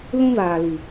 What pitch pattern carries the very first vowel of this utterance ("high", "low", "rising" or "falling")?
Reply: high